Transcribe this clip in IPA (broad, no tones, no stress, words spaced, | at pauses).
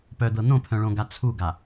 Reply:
pœd̪ɤ n̪õpʰœ̃ɭõɡa t͡sʰuɡa